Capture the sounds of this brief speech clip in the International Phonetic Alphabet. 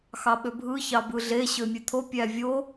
xɑɓøbʱɯ çɑbɯɮe ɕømʲet̪ʰo pʲævʲo

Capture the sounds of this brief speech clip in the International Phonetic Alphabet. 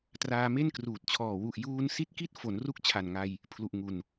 traː˧me˥˩nkruː˨˩t̚t͡ɕʰɔː˨˩ wu˨˩ʔjuː˧n si˦˥t̚ki˦˥t̚ fo˩˦nru˦˥k̚ t͡ɕʰa˨˩nŋa˧j | pʰlu˨˩ʔ ŋu˨˩n

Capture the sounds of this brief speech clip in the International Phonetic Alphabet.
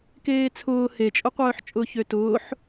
keːt͡sʰʊː het͡ʃʼʊqʷœːħt͡ʃʼʊːç øtʊːħ

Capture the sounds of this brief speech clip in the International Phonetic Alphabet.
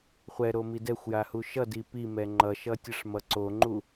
χʷɛɾomi dɛxʷjahu ʃʌdi pimɛ ŋ͡ǃʌʃʌtʲʌʂmʌ ǀoŋ͡ǃu

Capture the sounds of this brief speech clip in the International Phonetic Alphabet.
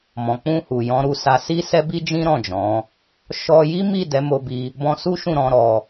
mɔ̃˨k͡pũ˧ hu˨jɔ̃˨˦ɾu˧sa˧ si˦sɛ˦bi˦d͡ʒĩ˦ ɾɔ̃˦˨d͡ʒɔ̃˨˦ | ʃɔ˧ ji˦mi˦˨ dɛ˨˦mo˧bi˧ | bɔ̃˧su˦ʃũ˦˨ ɾɔ̃˨˦ɾɔ˧

